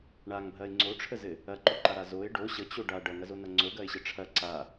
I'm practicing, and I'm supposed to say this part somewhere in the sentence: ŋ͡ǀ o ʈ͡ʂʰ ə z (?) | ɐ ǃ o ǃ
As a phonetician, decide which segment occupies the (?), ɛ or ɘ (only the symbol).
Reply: ɘ